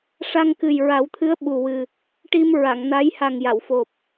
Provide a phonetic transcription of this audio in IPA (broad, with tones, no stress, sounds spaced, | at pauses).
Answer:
ʂ a˧ ŋ k ɨ˨˩ j ɹ a˨˩˦ w t̪ʰ ɨ˧˥ ə̯ ɓ u˨˩ w ɨ˨˩ | ʈ i˧ m ɹ a˨˩˨ ŋ n a˧˥ j h a˨˩ ŋ j a˨˩˨ w f o˨˩ p̚